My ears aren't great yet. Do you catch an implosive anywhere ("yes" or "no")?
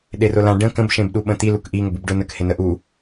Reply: yes